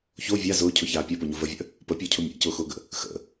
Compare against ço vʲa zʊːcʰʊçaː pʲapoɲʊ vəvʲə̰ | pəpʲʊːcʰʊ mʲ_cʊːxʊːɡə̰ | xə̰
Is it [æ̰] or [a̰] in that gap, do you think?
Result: a̰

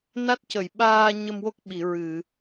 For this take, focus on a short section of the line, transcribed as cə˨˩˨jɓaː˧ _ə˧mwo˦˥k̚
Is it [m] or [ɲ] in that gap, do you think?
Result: ɲ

